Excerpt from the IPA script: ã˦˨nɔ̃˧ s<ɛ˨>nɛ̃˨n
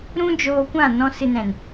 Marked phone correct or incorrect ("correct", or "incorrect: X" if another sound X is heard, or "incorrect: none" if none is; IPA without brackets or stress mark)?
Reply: incorrect: ɨ˨